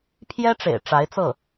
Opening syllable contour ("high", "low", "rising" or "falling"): high